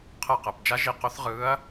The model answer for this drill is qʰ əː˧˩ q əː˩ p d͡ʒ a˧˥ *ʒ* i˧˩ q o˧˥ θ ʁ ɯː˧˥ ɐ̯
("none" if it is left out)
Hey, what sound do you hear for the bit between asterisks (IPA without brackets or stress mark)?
ʒ